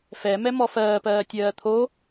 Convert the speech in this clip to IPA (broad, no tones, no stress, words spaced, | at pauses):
fɛ mɛmɔfɜːpɜː tʲɜːt̪ʰo